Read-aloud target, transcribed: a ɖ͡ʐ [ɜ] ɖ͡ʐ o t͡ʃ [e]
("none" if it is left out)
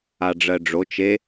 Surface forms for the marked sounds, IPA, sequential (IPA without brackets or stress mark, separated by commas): ɜ, e